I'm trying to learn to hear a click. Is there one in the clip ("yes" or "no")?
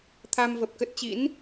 no